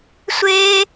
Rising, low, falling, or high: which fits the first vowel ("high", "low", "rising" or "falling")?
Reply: high